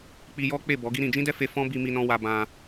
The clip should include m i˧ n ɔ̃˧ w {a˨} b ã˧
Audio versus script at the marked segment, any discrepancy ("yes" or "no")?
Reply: yes